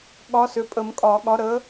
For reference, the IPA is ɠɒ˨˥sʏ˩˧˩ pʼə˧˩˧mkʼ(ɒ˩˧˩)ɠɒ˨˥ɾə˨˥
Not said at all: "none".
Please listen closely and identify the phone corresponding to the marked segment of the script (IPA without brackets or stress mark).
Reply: ɒ˧˩˧